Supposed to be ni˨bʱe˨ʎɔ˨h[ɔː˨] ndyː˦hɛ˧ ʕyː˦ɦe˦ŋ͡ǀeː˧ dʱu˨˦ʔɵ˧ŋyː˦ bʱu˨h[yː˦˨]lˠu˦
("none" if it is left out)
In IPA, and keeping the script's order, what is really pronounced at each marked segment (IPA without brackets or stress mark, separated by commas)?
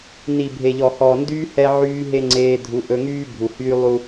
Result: ɔː˨, yː˦